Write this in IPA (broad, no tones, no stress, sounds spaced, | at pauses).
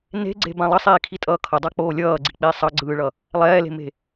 n e̤ ɡ͡ǀ e̤ b ã lˠ ʌ sˤ iː kʰ i tʼ ʌː kʰ ʌ dˤ a k͡p oː lʲ ʌː ɡ͡ǀ i k͡p iː sˤ ʌ ɡ͡ǀ ɯː ɭ ʌ | lˠ ɛː l e̤ m e̤